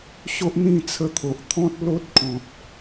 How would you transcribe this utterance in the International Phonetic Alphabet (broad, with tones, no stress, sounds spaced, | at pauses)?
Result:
ɕ o˦ ʔ n̪ ĩ˥˧ t͡sʰ ə˧ t̪ʰ o˨ ʔ t̪ʰ ɔ̃˦ t̚ l o˦ t̚ kʰ ɔ̃˨ t̚